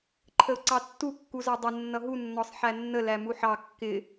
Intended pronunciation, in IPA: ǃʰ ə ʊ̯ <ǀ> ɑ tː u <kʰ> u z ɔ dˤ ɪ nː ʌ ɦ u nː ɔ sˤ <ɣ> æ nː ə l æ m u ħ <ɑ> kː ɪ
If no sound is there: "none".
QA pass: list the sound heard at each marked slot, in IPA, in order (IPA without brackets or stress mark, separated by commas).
ǀ, kː, ħ, ɑ